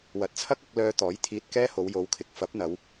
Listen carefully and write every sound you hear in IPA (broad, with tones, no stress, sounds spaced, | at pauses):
w ɐ˨˥ t̚ t͡sʰ ɐ˥ k̚ ɐ˧ k̚ l œː˧ t̪ ɔː˨˥ j t̪ʰ iː˧ t̚ k ɛː˥ h o˨˧ w j o˨˧ w kʰ ɪ˨˥ k̚ f ɐ˨˥ p̚ n̪ ɐ˨˧ w